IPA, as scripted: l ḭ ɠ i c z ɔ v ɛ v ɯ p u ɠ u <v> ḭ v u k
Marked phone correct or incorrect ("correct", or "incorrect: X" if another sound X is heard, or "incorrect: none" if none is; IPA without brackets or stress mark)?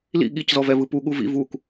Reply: correct